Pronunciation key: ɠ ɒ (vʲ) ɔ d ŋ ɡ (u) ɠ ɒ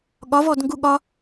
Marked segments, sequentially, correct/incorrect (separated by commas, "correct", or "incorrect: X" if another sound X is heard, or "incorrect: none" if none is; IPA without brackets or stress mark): incorrect: v, correct